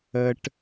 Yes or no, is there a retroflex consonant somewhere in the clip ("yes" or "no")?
yes